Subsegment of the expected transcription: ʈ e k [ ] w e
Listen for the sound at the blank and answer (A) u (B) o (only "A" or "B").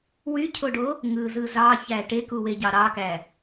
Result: A